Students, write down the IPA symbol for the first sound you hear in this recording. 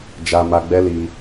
d͡ʒ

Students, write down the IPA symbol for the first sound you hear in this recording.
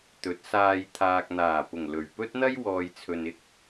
t̪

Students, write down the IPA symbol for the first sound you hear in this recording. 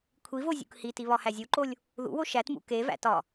kʷʰ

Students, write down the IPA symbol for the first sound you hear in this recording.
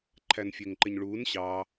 ǃʰ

